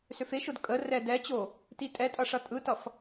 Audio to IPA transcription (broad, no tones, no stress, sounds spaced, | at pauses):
s ø f e ʃ ʊ d kʼ ə r ɛ d ɛ t͡ɕ o | t i tʼ ɛ tʼ ʌ ʂ ʌ tʼ ɯ t ʌ f